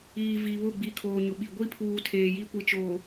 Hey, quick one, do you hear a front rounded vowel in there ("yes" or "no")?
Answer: no